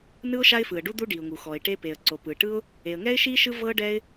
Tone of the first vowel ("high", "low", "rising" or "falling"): high